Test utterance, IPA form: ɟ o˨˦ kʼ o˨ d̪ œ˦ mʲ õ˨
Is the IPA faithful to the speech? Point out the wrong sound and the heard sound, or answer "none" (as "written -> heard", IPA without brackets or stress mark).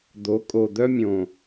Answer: ɟ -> d̪